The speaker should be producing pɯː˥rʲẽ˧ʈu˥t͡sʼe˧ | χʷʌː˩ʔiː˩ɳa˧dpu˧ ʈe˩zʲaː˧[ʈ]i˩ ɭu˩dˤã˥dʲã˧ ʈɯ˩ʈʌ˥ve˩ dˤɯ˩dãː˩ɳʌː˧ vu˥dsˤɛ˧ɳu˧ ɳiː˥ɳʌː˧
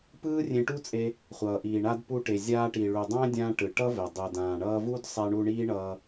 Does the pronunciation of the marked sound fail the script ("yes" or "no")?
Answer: no